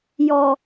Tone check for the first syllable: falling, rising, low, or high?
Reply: low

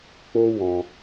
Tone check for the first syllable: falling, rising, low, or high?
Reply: high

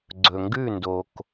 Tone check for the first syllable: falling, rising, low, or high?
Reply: low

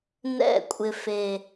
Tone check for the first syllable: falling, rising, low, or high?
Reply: falling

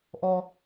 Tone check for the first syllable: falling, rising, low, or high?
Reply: low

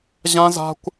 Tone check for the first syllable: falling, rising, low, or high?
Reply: high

